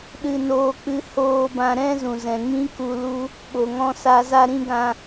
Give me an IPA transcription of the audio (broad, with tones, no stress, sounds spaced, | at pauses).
ɗ ɨ˧ n oː˧ k͡p ɨ˧ h oː˧ b ã˧ ɾ ɛ̃˦ z ũ˨ z ɛ̃˨ ŋ ĩ˦ k u˧ l u˦ | ɓ o˨ ŋ ɔ̃˧ s a˧ z a˧ ɾ ĩ˧ ɡ ã˧